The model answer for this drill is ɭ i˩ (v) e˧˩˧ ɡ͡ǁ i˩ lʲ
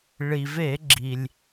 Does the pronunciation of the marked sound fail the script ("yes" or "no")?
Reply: no